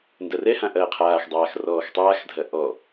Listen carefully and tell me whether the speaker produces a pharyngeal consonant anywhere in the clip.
no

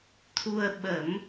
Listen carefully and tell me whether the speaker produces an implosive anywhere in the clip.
yes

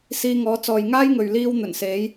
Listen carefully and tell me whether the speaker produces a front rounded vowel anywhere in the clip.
no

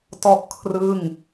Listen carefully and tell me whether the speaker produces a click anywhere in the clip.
no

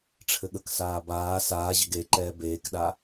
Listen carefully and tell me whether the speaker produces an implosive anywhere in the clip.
yes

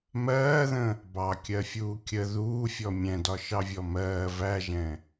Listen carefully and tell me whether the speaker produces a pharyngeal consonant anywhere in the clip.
no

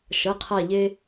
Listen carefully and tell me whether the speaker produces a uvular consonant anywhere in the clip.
yes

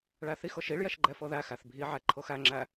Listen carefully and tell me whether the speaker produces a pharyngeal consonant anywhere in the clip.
yes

